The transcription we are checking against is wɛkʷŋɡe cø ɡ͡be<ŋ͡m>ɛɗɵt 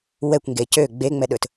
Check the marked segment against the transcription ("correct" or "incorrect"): correct